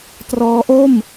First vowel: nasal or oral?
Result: oral